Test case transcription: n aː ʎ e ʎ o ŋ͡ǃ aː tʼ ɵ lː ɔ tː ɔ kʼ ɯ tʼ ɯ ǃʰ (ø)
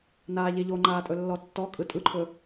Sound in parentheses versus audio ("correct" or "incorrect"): incorrect